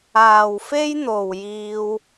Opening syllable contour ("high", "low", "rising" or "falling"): low